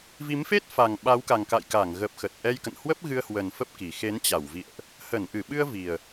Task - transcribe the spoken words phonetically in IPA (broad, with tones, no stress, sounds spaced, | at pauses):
v i˨˦ m f e˦˥ t̚ f a˨˩ ŋ ɓ a˨˦ w k a˨˩ ŋ k a̰˧˨ j k a˧˩ ŋ ɣ ə˨˩ p̚ x ə˨˩ t̚ ʔ ɛ˧ j k ə̰˧˨ n h w ə˦˥ p̚ ɣ ɨ˧ ə̯ h w ə˨˩ n f ə˦˥ p̚ k i˨˩ x e˨˦ n t͡ɕ a˧˩ w v ḭ˧˨ ə̯ ʔ | h ə˧˩ n ʔ ɨ˧˩ ɓ ɨ˧ ə̯ v i˨˩ ə̯